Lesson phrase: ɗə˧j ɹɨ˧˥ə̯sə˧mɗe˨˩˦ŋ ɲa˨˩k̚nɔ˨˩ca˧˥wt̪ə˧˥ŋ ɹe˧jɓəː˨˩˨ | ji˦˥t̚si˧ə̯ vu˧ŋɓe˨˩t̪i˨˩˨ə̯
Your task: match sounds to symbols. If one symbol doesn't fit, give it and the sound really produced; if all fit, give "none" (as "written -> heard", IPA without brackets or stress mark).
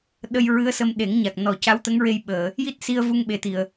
none